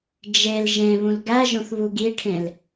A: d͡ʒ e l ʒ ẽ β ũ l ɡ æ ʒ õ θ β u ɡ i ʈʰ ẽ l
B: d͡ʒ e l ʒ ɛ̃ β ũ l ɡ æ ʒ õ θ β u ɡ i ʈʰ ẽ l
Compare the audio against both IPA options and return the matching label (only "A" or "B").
A